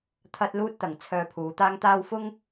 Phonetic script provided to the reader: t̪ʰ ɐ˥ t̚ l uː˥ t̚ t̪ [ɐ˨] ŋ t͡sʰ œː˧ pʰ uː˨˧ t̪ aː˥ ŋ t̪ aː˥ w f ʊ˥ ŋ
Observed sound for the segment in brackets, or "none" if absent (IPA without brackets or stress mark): ɐ˨